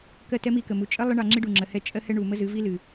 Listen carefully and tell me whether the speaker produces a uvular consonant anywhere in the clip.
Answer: no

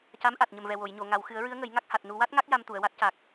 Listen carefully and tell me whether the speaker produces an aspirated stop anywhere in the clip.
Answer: no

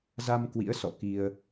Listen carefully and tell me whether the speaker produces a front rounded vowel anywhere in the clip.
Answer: no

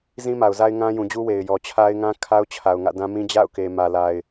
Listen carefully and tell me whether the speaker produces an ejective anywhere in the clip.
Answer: no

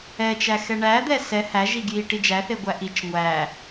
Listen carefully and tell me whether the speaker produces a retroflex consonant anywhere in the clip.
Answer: yes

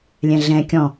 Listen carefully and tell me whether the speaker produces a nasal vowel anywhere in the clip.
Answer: yes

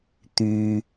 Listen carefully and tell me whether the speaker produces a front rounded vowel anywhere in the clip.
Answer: yes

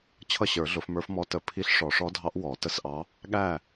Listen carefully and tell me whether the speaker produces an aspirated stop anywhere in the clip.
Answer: yes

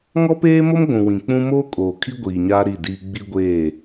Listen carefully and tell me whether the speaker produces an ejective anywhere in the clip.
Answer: yes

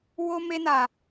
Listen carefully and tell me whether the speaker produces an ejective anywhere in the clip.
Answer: no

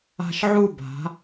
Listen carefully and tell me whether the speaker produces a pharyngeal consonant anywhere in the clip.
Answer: yes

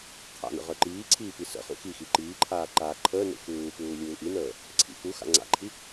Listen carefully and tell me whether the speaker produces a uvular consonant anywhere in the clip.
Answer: yes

